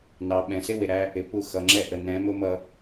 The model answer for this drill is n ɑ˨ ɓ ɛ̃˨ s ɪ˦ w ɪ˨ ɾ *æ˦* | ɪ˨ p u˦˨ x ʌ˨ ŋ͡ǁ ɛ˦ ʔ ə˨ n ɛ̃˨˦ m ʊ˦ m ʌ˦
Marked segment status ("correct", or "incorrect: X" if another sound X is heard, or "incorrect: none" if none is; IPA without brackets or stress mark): correct